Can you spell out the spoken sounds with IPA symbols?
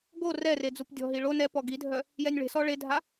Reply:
ɡ o r ɛ r e d͡z u p dʲ ɔ̤ ɦ i ɭ o n ɛ p ɔ ɡ i dʱ œ | j ɛ nʲ ɭ e̤ s ɔ ɭ e dʱ a

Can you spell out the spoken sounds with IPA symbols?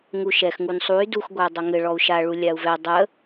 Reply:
ŋ u ʃ ɛ x ŋ u n sˤ u y̯ d u x ɡʷ a y̯ dˤ a ŋ ɘ ɭ ɔ u̯ ʃ a ɭ u lʲ a u̯ v ɛ dˤ ə

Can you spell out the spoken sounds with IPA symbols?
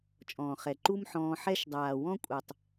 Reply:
t͡ʃʼ ɔ̃ː˨ χ ɛ˨ ǃ u˦ m ħ ɔ̃ː˧ ħ ɛ˦ ʃ dˤ aː˨ w ɔ̃˦ kʷʼ ɛ˨ tˤ

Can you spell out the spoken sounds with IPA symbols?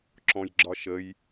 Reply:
ǁ ɔ̃ j ɡ͡ǁ ɒ ʃ ə j

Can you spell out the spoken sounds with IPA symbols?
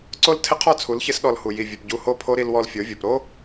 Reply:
ǀ o˦ l tʰ ɪ˦ qʰ ɔ˦˨ t͡sʰ u˨˦ l ç ɪ˦ s ɗ ɔ˧ l h u˨ j i˨ vʲ ɵ˨ p ɟ u˧ h o˦ pʰ o˦ ɾ i˧ l w ɔ˧ l fʲ o˨˦ vʲ o˨ p ɾ o˦

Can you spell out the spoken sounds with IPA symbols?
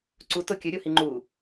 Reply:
ǀ u t o kʲ ɵ ɾʲ o h i ŋ͡ǃ u

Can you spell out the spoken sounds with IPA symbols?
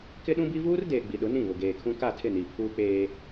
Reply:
k ɪ˦ ɗ ũ˦ b i˦ v uː˦ r d eː˨ ɡ͡b i˨ ɗ ʊ˨˦ n ĩ˦˨ β ʊ˨ ɡ eː˨ kʰ ũ˦ k a˦˨ tʰ ɪ˦˨ n i˨ pʰ uː˦ k͡p eː˦

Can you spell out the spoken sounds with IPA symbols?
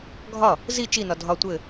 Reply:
ɡʱ ɒ | z i t͡ʃ i n ɒ dʱ ɒ tʷ ɘ

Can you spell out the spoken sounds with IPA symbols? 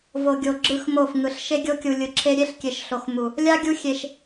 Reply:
v o˨ ɡʲ o˨ ɡ͡ǁ ɯ˦˨ x m o˦˨ f ŋ ɯ˨ ɬ ʃ e˦ ɡʲ o˦ kʲ u˨ lʲ ɯ˨ ǁʰ e˦ ɾʲ e˦ ɬ kʲ e˨ ʃ ɬ o˨ x m u˨ | lʲ a˦ ɡʲ u˦ xʲ e˨ ʃ

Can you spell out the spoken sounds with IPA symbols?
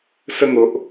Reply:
s ə˥˧ ŋ o˦ ʔ

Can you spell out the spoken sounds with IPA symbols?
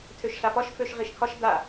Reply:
tʰ ø ʃ ɬ a f ɒ ʃ f ø ʃ ʁ i ʃ kʰ ɒ ʃ d a

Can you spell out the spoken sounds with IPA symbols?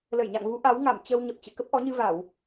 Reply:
l ə˧˩ j ɲ a̰˧˨ ŋ v u˨˦ ʔ a˨˦ w ŋ a˧˩ m t͡ɕ ə˧ w ɲ ə˨˩ p̚ t͡ɕ ɨ̰˧˨ k ə˦˥ p̚ ʔ ɔ˨˦ ɲ ɨ˧ v a˧˩˨ w

